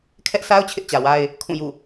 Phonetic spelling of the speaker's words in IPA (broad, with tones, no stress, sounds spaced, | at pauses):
kʰ ɛ˦ ʔ sʰ a˦ ʊ̯ t͡ɕʰ ɪ˦ ʔ t͡ɕ ä˨ w a˦ ɪ̯ | kʰ ũ˦˨ j ṵ˦˨